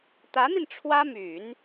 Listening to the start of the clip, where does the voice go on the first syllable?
rising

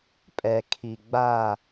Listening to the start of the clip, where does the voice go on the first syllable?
low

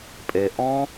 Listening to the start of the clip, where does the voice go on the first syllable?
low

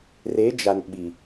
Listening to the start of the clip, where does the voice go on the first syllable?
rising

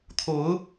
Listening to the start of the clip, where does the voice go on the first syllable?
rising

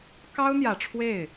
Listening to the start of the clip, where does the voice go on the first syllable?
high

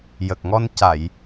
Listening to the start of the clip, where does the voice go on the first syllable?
low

